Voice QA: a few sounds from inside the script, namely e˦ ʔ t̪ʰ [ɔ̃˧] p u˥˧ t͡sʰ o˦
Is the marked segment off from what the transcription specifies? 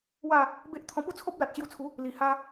no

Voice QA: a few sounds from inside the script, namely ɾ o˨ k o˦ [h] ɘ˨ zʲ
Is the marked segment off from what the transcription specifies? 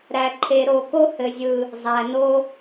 no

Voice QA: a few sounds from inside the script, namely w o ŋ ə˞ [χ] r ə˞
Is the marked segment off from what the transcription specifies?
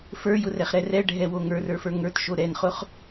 yes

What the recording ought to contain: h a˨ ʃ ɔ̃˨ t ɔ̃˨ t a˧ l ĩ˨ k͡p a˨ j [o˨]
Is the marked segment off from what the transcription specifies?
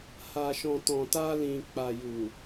yes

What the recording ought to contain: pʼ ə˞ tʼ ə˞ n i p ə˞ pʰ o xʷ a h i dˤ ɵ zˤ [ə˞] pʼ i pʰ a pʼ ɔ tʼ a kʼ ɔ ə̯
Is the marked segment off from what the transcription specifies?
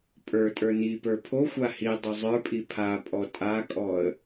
no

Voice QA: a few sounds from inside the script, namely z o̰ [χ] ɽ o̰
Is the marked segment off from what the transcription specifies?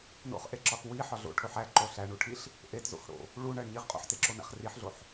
yes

